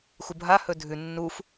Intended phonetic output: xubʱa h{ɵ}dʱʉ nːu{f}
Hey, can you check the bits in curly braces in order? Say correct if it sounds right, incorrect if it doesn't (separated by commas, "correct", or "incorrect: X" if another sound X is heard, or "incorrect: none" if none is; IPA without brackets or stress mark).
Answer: correct, correct